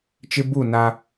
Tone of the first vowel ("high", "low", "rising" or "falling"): high